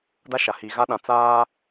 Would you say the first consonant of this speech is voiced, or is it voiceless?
voiced